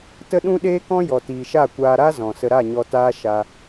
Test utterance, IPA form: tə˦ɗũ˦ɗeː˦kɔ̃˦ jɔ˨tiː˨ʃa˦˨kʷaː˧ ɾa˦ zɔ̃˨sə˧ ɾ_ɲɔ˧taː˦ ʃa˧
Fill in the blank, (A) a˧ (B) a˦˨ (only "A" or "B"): B